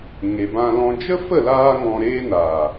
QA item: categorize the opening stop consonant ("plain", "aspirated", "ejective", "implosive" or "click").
plain